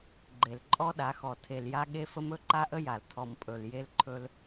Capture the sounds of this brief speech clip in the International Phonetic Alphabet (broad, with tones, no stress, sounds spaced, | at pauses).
ɡ͡ǃ e˨ l ǃʼ ɔ˦ ɗ a˨˦ x ɔ˨ tʰ e˨ l j a˦ ɠ e˦ f ə˦ m ɵ˦ ǃ a˦ ʔ ə˦ j a˨ l tʰ ɔ˨ m pʼ ɵ˨ l j e˦ l ǃʰ ɵ˦ l